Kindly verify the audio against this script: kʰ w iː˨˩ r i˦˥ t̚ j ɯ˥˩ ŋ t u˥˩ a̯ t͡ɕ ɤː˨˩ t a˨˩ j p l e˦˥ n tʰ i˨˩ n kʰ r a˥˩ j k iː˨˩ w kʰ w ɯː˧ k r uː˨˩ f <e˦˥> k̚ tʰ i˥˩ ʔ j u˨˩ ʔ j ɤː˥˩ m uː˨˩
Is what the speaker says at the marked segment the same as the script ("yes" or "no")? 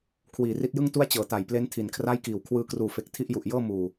no